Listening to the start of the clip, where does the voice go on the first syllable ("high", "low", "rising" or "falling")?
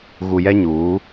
low